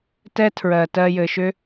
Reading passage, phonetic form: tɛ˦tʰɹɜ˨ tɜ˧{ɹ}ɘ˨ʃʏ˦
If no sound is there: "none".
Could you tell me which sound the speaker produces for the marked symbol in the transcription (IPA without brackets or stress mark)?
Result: j